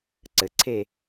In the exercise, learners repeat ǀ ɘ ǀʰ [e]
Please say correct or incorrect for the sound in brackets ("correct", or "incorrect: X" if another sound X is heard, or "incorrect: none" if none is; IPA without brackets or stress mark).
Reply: correct